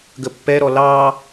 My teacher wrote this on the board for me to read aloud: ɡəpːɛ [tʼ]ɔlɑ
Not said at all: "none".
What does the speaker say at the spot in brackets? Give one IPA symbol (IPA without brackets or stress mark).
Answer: ɾ